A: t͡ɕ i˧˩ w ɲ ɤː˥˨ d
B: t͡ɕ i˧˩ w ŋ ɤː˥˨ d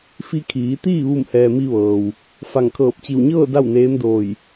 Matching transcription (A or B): A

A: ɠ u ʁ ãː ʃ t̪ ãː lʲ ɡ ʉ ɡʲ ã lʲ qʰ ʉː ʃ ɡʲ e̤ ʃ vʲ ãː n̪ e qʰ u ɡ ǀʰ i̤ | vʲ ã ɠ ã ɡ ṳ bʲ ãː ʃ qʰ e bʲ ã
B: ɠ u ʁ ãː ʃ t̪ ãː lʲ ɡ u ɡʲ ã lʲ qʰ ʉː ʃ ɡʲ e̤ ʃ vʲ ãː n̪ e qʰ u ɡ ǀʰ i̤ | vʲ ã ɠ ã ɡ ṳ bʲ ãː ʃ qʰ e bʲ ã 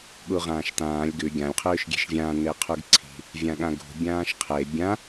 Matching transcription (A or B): A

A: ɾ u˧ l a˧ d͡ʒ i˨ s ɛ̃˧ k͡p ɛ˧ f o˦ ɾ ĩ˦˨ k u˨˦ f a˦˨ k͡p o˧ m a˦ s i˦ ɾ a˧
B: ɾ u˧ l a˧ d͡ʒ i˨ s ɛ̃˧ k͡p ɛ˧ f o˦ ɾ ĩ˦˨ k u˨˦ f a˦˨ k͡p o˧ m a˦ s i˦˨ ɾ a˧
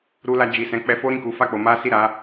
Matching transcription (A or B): B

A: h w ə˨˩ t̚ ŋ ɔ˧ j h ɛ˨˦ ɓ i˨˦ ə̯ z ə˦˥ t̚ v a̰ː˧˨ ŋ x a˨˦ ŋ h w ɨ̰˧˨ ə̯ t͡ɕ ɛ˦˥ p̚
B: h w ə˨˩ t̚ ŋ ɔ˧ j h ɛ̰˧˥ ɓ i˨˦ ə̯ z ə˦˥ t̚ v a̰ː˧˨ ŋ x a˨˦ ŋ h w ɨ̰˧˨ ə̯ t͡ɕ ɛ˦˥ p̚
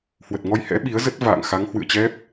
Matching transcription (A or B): B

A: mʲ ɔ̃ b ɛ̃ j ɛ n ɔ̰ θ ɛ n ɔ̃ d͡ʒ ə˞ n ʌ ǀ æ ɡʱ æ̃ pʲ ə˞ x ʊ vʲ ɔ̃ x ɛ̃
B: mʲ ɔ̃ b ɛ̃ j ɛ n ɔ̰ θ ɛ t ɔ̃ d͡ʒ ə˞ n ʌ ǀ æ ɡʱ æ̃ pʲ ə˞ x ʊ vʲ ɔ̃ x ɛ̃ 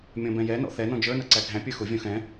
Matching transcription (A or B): A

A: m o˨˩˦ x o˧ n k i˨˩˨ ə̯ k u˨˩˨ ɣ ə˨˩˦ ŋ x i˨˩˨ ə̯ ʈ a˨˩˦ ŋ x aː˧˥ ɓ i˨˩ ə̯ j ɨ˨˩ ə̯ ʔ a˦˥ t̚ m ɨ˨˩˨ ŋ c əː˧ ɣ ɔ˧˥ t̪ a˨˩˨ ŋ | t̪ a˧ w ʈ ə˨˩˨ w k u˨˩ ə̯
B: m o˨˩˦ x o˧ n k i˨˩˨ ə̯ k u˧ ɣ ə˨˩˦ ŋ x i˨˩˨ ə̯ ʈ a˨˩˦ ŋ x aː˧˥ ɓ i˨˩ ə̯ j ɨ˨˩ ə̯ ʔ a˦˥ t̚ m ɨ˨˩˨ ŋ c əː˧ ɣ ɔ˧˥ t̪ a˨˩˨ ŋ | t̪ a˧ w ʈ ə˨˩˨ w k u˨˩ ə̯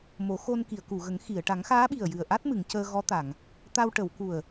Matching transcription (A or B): A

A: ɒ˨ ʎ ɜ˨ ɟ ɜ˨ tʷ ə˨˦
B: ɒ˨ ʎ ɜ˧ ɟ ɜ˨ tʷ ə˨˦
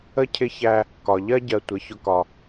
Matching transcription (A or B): B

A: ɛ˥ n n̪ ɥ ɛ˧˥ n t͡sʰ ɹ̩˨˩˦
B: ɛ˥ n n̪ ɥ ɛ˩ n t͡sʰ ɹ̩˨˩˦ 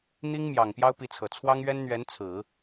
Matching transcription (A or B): A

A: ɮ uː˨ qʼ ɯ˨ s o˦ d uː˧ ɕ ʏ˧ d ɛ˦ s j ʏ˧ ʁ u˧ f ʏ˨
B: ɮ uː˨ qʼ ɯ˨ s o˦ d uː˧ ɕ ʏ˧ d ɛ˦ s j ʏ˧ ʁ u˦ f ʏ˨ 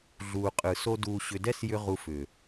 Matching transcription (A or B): A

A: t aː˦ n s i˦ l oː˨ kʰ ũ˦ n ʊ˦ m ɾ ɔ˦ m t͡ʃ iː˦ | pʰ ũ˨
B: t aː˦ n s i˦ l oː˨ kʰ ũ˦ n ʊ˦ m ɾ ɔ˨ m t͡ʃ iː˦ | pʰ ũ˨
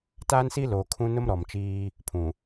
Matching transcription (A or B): B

